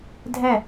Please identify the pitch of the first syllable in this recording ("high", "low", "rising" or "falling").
falling